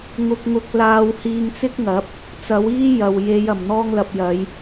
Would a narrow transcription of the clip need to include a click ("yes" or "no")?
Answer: no